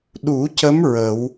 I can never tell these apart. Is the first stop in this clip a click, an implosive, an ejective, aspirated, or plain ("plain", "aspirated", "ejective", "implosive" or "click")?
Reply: implosive